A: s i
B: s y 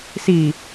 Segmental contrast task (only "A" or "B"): A